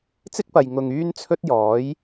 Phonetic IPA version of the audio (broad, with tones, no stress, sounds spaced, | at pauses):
t͡s ɪ˥ k̚ p ɐ˨ j ŋ ʊ˨ ŋ yː˥ n t͡sʰ ɵ˥ t̚ j ɔː˨˥ j